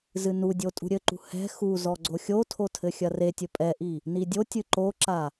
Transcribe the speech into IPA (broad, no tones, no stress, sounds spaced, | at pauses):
z ɨ n u dʲ o tʼ ṳ ɾʲ ɘ ǃ ṳ h ɛ̤ x u z ɔ ɡ͡ǀ o xʲ o tʰ o tʰ ɘ xʲ ɐ r e tʲ ɘ pʼ ɛ ʔ i | n i dʲ o tʲ ɨ ǃ o ǁ a